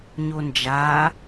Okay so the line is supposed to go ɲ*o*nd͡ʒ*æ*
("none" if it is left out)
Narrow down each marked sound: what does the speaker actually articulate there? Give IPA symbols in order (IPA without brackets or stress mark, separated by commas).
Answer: o, a